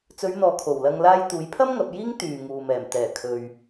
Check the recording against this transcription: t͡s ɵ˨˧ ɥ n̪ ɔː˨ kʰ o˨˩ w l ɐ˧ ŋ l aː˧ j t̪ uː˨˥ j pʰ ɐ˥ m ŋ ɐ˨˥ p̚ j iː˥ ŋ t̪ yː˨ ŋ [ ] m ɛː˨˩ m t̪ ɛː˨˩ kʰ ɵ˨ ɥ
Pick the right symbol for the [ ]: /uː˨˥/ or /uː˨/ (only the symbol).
uː˨